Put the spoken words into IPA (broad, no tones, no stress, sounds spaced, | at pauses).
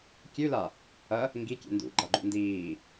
kʲ ʉ l a | ɐ | ŋ ɡ i kʲ ḛ n d ṵ ɡ͡ǃ a ɡ͡ǃ ṵ n d iː